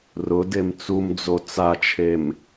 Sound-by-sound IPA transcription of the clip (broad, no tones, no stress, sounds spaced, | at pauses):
r ʊ d e m t͡s u m d͡z o t͡s a t͡ʃʰ e m